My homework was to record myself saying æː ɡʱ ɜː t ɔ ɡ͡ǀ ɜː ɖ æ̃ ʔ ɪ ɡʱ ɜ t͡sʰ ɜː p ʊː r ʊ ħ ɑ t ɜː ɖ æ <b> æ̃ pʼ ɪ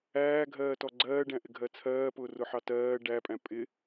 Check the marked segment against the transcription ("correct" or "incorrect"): incorrect